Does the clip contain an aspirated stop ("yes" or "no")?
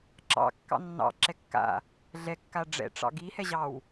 no